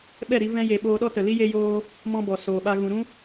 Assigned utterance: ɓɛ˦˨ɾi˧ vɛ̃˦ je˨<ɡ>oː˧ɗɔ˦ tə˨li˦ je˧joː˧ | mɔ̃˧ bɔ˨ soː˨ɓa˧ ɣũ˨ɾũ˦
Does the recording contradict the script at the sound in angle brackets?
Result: yes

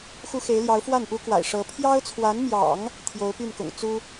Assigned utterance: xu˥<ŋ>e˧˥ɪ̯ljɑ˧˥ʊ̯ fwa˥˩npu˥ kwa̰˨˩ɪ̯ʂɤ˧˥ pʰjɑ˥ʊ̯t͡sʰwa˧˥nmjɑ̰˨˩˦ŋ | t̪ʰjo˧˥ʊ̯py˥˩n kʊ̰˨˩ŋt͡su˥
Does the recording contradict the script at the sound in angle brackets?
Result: yes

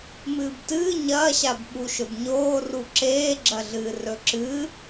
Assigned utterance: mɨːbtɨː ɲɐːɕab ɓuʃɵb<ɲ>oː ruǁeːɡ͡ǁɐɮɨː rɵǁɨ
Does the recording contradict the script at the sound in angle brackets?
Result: no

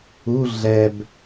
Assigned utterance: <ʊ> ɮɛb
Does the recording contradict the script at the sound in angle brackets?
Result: yes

